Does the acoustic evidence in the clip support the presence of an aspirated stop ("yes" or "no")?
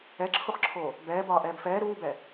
yes